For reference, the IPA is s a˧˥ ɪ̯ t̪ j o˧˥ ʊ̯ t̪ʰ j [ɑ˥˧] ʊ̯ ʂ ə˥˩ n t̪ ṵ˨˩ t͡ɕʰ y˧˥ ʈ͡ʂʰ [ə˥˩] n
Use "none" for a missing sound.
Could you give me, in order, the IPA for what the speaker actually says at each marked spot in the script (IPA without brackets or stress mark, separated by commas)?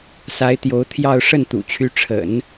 ɑ˥˧, ə̰˨˩˦